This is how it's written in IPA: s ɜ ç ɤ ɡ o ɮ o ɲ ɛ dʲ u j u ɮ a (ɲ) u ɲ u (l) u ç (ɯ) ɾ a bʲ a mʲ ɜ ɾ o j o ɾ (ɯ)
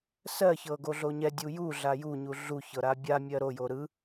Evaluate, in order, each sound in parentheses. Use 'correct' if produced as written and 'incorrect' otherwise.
incorrect: j, incorrect: ɮ, incorrect: ɤ, correct

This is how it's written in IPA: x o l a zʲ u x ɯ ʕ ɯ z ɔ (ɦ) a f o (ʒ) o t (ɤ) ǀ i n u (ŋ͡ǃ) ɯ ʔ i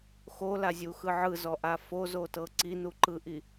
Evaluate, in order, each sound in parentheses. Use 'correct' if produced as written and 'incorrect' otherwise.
incorrect: ʔ, incorrect: z, correct, incorrect: ǃ

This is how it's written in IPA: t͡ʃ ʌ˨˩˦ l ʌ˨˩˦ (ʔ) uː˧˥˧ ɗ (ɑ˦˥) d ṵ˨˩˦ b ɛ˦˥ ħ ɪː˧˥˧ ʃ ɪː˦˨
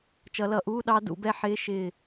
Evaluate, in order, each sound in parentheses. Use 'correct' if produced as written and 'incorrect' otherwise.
correct, correct

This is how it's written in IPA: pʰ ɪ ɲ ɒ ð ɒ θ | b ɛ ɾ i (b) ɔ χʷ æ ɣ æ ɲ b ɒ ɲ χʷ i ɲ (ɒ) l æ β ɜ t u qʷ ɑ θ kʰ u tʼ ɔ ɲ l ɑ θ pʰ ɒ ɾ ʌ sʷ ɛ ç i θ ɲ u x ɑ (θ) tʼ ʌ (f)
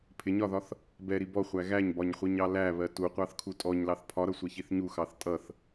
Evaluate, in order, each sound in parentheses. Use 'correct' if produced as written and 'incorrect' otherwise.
correct, incorrect: ɑ, correct, incorrect: θ

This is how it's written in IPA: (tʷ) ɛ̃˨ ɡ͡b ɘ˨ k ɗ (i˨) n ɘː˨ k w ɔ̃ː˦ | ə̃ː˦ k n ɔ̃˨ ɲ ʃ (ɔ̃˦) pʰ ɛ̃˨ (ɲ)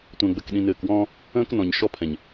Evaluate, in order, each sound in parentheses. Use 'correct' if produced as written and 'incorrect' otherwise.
correct, incorrect: ĩ˨, incorrect: ɔ˦, correct

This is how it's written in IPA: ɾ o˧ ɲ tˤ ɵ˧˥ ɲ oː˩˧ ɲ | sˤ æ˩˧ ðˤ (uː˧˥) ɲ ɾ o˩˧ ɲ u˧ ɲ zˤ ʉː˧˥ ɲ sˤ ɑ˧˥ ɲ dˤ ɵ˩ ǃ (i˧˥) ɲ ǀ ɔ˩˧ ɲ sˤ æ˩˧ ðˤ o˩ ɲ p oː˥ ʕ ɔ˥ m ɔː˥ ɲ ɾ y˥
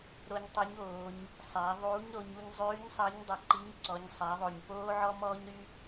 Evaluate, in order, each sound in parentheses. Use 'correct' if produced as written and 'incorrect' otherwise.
correct, correct

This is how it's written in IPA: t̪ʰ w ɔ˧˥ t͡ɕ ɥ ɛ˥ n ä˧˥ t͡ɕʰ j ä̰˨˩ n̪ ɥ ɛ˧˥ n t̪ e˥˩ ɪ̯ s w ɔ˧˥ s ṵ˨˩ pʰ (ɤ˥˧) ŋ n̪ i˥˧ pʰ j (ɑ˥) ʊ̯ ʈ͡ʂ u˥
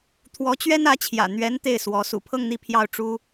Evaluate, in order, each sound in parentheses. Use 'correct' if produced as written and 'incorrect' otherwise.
correct, incorrect: ɑ˥˩

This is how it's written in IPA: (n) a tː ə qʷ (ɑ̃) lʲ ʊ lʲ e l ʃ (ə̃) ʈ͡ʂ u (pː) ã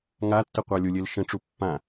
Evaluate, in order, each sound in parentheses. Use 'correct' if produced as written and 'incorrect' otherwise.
incorrect: ŋ, incorrect: ɑ, correct, correct

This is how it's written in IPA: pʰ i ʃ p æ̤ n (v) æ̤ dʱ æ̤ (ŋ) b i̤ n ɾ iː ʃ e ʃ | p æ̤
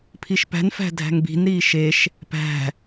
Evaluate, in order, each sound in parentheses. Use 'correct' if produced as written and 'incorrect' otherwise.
incorrect: f, correct

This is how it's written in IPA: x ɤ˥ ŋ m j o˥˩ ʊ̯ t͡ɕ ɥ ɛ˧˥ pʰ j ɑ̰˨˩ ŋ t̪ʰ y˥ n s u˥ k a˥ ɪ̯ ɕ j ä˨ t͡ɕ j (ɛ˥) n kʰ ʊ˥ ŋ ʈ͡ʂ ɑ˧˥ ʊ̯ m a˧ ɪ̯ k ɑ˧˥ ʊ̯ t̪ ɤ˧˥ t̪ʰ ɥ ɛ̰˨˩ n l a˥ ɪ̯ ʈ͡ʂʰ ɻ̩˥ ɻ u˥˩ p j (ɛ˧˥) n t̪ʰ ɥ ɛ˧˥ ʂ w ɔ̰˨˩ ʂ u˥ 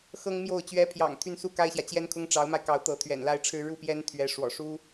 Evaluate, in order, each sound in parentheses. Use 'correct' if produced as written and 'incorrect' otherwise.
correct, incorrect: ɛ˥

